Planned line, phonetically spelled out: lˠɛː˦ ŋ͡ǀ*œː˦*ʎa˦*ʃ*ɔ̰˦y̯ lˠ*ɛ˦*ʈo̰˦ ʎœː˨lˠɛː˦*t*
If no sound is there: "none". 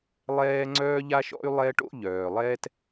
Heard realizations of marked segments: œː˦, ʃ, ɛ˦, t

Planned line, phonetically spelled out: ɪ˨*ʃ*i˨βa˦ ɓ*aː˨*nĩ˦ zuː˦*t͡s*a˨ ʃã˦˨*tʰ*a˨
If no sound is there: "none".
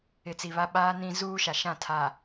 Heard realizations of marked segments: t͡s, aː˦, ʃ, tʰ

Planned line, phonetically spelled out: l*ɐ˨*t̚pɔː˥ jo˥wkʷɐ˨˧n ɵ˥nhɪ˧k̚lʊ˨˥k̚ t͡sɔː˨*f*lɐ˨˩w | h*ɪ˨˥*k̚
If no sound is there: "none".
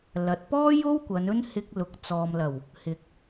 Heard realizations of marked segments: ɐ˨, m, ɪ˨˥

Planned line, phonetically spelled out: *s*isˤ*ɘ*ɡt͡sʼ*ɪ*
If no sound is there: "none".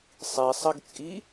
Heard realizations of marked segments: sˤ, ɘ, i

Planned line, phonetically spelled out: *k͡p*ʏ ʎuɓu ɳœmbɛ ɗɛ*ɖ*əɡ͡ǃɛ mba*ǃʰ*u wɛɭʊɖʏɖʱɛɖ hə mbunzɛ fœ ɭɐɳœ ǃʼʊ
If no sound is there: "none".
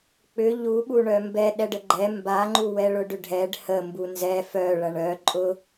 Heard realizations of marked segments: k͡p, ɖ, ŋ͡ǃ

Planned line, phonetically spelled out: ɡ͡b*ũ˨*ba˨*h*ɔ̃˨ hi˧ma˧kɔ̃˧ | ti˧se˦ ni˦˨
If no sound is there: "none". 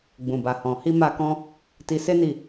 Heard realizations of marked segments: ũ˨, h

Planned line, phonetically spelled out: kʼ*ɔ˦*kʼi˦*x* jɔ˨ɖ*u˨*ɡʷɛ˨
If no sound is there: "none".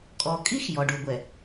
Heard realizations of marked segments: ɔ˨, x, u˨

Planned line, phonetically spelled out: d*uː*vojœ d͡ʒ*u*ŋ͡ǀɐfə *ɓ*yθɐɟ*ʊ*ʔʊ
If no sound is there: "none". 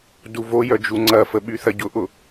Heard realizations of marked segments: u, u, ɓ, ʊ

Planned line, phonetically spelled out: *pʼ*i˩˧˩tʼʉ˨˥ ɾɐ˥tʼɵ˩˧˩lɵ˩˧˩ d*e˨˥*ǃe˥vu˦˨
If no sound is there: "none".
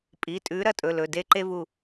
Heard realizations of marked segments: pʼ, e˦˨

